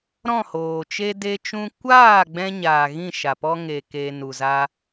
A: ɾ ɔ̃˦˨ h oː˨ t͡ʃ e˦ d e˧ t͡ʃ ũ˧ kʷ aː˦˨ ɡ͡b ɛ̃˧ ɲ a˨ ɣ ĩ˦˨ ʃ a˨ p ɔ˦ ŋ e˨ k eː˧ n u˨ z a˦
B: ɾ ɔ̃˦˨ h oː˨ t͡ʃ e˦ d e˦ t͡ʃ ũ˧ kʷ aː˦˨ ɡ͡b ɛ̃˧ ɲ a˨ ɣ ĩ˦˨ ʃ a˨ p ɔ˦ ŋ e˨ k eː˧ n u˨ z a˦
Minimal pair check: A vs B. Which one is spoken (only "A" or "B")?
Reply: A